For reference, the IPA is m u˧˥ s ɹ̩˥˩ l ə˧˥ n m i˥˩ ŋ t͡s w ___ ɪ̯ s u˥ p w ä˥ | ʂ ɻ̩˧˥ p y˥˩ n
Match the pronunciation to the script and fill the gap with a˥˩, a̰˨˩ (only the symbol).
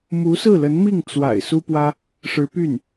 a̰˨˩